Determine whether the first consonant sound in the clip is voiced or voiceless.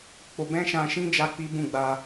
voiceless